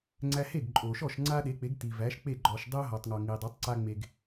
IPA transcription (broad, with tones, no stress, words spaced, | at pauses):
ŋ͡ǀæ˧ he˥˩ɡǃʼo˩ʃɔ˥˩ʃ ŋ͡ǀa˥ɗe˩˥k͡pe˩˥ɡ ti˩væ˩˥ʃk͡pe˥˩ ɡ͡ǃɔ˩ʃ dˤe˥ʊ̯ɦɔ˩tˤŋɔ˩ ŋi˩ dˤa˩˥tˤǀa˧ŋ͡me˩ɡ